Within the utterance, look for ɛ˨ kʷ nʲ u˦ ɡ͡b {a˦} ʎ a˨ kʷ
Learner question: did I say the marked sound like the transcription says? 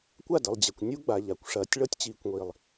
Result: no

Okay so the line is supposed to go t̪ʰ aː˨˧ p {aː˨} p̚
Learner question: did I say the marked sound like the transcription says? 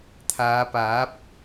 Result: no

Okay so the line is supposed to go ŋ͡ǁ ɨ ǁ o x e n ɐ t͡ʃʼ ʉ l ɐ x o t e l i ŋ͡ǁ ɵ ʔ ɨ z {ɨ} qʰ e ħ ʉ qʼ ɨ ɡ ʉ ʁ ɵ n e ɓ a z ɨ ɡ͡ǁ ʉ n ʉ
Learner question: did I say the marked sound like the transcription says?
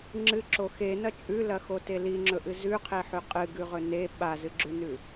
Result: no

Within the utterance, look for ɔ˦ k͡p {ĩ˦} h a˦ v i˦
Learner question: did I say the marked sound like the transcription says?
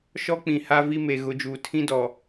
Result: no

